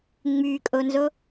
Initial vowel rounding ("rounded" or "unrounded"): rounded